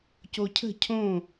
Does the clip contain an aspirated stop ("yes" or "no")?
yes